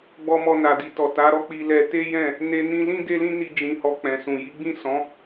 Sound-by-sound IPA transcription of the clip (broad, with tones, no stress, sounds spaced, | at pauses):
ɡ͡b ɔ˧ m ɔ˧ n a˨ d i˨ t ɔ˨ t a˨˦ ɾ ɔ˦ k͡p i˧ l ɛ˧ t e˦ j ɛ̃˦˨ | n e˧ n ĩ˧ l ĩ˦ d e˦ l ĩ˦ n i˧ d͡ʒ ĩ˧ h ɔ˧ k͡p ɛ̃˨ s ũ˨ j i˨˦ ɡ͡b ĩ˦˨ s ɔ̃˨˦